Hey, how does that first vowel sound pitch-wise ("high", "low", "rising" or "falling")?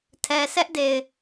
low